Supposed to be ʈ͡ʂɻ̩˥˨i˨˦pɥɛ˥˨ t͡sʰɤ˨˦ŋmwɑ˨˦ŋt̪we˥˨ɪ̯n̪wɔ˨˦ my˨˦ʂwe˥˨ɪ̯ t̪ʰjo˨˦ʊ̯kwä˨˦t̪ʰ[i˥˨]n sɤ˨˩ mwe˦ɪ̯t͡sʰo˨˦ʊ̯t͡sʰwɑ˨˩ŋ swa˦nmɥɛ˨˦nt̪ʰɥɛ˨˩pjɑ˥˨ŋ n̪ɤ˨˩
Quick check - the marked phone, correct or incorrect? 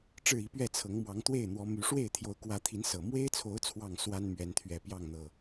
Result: incorrect